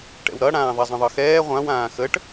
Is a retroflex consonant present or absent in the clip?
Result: present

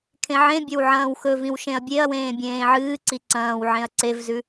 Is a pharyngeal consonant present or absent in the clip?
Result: present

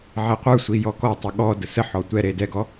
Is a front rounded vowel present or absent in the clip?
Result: absent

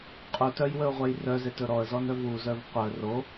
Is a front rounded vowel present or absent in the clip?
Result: present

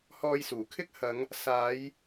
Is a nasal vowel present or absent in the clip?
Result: absent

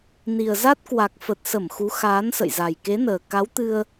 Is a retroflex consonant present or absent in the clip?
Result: absent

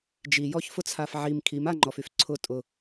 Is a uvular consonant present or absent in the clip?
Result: absent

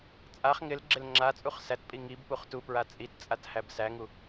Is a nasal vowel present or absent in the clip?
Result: absent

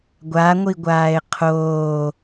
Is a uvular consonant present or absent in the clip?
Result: present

